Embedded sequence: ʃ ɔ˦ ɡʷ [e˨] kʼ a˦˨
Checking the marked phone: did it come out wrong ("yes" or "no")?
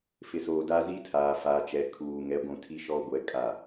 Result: yes